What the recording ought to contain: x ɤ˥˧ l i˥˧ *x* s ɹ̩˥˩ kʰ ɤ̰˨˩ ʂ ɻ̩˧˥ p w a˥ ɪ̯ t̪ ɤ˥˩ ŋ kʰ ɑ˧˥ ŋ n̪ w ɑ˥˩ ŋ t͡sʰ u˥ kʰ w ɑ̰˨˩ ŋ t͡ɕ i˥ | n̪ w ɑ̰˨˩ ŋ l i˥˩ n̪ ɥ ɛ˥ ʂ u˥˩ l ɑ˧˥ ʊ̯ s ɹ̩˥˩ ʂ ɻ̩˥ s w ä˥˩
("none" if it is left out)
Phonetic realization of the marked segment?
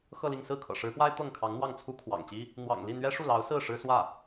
ŋ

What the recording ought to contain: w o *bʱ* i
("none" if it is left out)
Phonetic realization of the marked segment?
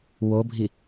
bʱ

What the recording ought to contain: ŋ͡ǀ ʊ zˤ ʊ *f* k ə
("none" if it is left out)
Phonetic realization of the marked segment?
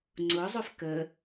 f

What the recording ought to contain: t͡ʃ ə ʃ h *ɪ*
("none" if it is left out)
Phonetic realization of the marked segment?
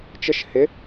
ɪ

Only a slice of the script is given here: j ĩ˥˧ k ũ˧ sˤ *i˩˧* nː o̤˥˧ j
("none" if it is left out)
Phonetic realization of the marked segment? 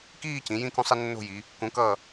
i˧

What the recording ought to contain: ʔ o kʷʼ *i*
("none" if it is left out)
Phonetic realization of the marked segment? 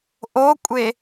e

